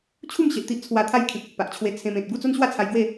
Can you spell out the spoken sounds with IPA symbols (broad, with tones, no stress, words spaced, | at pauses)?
t͡ɕʰu˥˧mɕe˨ʔt̪i˦ʔ t͡sʰwa˧t̪ʰa˥˧j kʰĩ˨k̚e˨ʔpa˨ʔt͡ɕʰwe˧ t͡sʰẽ˧mẽ˨t̚ ɡu˥˧t͡so˦nɕwa˥˧t͡sʰa˧j ɡwe˥˧